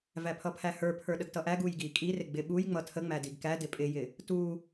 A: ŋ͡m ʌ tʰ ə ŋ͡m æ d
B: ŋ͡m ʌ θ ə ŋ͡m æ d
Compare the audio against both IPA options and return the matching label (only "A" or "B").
A